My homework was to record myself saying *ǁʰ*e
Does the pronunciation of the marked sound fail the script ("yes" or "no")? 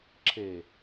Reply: no